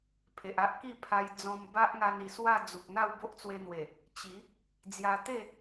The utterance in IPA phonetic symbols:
pʰ e˨ ʔ a˦ ʔ k i˥˧ pʰ a˧ j d͡z ɔ̃˧ m b a˦ ʔ ŋ a˧ n i˨˩ s w a˥˧ d͡z u˨ k̚ n̪ a˥˧ w b o˦ ʔ t͡s w e˧ n̪ w e˨˩ | t͡ɕ i˨˦ | d͡z j a˧ t̪ e˥˧

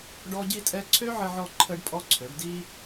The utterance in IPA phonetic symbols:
ɖ ɔ˦ ɟ i˦ tʼ ɛ˦ ǀʰ ø˦ ʕ ə˧ ʕ ɔ˧ ǃʰ ə˦ ɖ pʼ ɔ˦ ǀʰ ø˨˦ ɖ d i˦

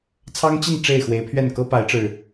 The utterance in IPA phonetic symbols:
t͡sʰ ɑ˦ ŋ t͡ɕ i˥˨ n ʈ͡ʂ e˥˨ ɪ̯ x w e˨˦ ɪ̯ pʰ ɥ ɛ˥˨ n k ɤ˦ p a˨˦ ɪ̯ ʈ͡ʂ ɻ̩˨˩

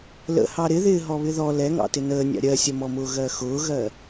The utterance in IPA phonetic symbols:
l ə̰ h ɑ ɾ ɪ ð ɪː ɦ ɔ β ɪ ð ɔ l ɛ ŋ ɑ̰ t ɪ n əː nʲ ɑ̰ ɾʲ ɜ sʲ ʌ m ɔ m ʊː ɣ ɜ x ʊː ɣ ɜ

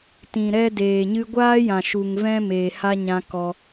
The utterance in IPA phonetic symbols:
t ĩ˨ ɾ ɛ˦ d eː˨ ɲ ɨ˧ ɡʷ aː˦ j ã˨ ʃ u˨ ŋ v ɛ̃˦ m eː˨ h a˦ ɲ ã˦ k ɔ˧

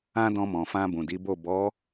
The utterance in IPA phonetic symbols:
ã˧ d ɔ̃˧ m ɔ̃˨ f ã˧ b ũ˨ d i˨˦ b o˦˨ b ɔ˨˦

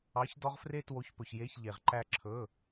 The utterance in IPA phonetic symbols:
ɑ˩˥ ç d ɔ˦ ʁ f r e˦ t w o˩˥ ç p ɵ˩ ç j e˩˧˩ ç ʎ e˩ ʁ ǃ æ˧˩ ǁʰ ɵ˩˧˩

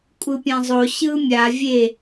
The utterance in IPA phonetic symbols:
kʷʼ ɯ pʲ ã zˤ o ɕ ɯ mʲ a vʲ e

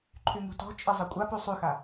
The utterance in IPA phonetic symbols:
ǃʰ y ŋ ṳ t ɔ̤ t͡ʃʼ ɪ zˤ ɐ kʷʼ a p y sˤ y x a

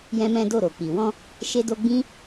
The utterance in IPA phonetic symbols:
j ɛ̃˦ m ɛ̃˦ d o˦˨ ɾ o˨ k͡p i˨ w ɔ̃˧ | ʃ e˦ d o˦ ɡ͡b ĩ˦

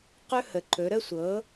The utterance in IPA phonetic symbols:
q ɵ˥ h ə˩˥ ǃ ɵ˩˥ ɾ ə˥ sʷ ɤ˩˥

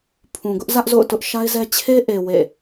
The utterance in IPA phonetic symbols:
pʰ ũ˨ ɡ ʊ˦ ʔ z ä˦ ʔ z o̰˦˨ ʊ̯ t ʊ˦ ʔ ʃ a˦ ɪ̯ z ɛ˦ t͡ɕʰ e˦ ʔ e˨ w ḛ˦˨

